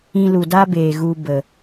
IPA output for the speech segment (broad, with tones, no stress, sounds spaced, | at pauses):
ĩ˧ l u˨ d a˦ b eː˨ ɣ u˧ b ə˨